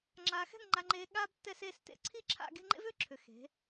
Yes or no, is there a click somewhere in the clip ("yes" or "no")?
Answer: yes